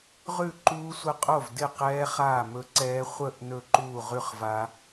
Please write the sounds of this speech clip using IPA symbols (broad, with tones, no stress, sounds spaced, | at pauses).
ʁ ʉ˥˨ ǃ uː˦˥ sʷ ə˦˥ qʼ o˥˨ v d ɪ˥˨ q ɛː˦˥ χ aː˥˨ m ɵ˦˥ ǀ ɛː˦˥ χʷ ə˥˨ ʔ n ɵ˥˨ ǃ uː˥˨ ʁ ʉ˥˨ χ v a˦˥